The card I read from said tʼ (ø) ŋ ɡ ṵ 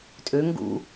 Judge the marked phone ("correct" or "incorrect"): correct